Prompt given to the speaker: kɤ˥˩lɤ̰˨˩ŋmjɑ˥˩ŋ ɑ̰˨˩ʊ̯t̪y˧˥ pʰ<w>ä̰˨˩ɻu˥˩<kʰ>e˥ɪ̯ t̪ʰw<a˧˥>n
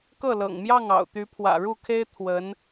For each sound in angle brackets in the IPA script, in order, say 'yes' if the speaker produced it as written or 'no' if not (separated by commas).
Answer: yes, yes, no